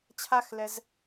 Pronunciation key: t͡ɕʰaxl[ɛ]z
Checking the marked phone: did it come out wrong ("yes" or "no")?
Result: no